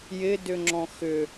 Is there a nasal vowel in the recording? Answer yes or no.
yes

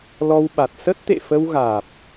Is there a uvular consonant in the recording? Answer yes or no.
no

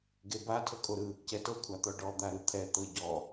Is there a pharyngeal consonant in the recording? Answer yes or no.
no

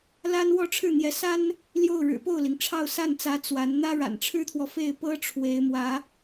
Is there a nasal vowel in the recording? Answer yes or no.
no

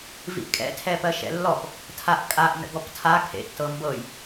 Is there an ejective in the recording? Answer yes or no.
yes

